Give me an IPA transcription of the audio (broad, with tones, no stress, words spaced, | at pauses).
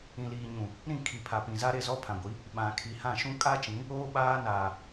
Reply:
ĩ˨liː˨ɲũ˨ | ɾĩ˦˨ kʰi˨pʰa˨pĩ˨za˦ ɾe˦˨zɔ˦pʰã˨ɡʷi˨˦ | ɓã˨kʰi˨hã˦˨ ʃũ˦kʼa˦t͡ʃĩ˨˦ | oː˦ɓaː˦ naː˨